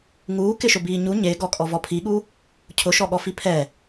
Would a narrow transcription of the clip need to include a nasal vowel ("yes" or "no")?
no